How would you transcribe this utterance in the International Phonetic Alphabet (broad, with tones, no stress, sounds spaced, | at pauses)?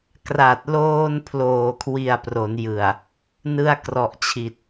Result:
k r a˨˩ t̚ l oː˧ n pʰ l oː˨˩ kʰ w i˨˩ a̯ p r o˩˦ n j ɯ˨˩ a̯ | n ɯ˧ a̯ k r ɔ˨˩ ʔ t͡ɕʰ i˨˩ t̚